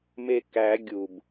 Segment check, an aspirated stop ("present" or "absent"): absent